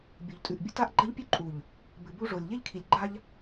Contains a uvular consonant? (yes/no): no